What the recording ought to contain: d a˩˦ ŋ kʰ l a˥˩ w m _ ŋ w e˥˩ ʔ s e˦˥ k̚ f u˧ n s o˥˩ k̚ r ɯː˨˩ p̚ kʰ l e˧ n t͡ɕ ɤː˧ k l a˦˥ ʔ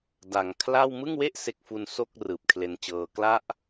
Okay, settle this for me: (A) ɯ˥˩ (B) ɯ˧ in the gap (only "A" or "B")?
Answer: A